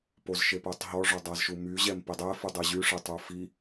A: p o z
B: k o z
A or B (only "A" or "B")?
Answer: A